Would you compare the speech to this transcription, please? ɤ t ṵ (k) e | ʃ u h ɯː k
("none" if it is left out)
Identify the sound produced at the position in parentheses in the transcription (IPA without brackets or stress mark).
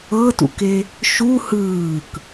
k